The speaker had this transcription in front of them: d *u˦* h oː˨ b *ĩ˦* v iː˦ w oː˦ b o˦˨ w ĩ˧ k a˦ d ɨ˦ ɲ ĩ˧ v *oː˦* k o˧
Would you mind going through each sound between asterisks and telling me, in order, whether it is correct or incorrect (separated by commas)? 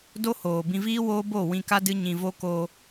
incorrect, incorrect, incorrect